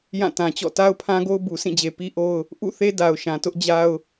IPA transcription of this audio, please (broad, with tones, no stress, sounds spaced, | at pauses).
j ã˦˨ t ã˨ t͡ɕ ɔ̰˦˨ t a˦ ʊ̯ pʰ ã˦ ɡ o˦ ʊ̯ b u˨ sʰ ĩ˦˨ d͡ʑ e˨ p i˦ ʔ o˦ ʊ̯ | ʔ ṵ˦˨ θ e˦ d a˨ ʊ̯ ʃ ã˨ t ʊ˦ ʔ d͡ʑ a˦ ʊ̯